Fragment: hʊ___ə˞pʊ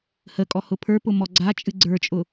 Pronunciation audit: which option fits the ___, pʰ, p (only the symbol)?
pʰ